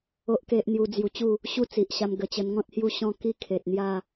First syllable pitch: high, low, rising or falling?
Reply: high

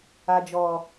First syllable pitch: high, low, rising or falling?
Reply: low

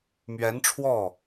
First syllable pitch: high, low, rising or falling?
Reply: rising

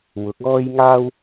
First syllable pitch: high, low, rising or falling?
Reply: rising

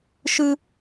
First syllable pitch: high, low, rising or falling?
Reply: high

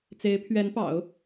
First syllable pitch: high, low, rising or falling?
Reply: rising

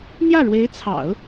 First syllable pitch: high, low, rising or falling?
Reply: falling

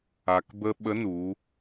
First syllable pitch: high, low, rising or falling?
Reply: low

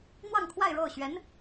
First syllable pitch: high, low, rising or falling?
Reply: falling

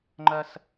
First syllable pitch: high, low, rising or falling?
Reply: high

